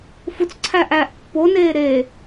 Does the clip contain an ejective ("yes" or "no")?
no